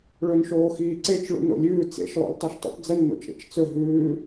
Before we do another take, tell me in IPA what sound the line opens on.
ɭ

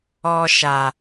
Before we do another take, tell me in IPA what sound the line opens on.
ɔ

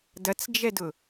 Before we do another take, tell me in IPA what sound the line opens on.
d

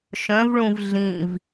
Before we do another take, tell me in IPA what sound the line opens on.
ʃ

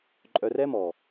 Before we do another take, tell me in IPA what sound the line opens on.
ǃʼ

